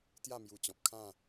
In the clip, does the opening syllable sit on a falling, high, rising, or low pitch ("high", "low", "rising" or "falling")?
falling